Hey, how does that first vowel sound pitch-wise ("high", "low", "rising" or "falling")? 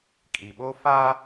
low